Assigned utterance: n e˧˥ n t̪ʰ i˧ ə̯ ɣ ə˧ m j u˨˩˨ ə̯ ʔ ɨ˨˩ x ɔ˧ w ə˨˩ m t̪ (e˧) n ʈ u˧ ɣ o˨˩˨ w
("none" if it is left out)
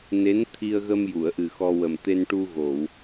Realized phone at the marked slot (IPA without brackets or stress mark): e˧